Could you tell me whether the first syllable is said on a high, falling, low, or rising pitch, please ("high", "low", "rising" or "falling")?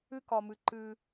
high